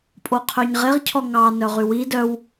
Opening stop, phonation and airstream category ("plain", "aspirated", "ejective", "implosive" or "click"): ejective